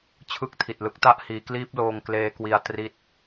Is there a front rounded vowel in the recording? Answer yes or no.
no